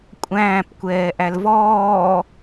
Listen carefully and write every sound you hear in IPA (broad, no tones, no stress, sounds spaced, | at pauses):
kʷʼ æ̃ː p kʷ ɛː ʔ æ l v ɔː